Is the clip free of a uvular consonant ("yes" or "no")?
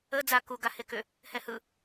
yes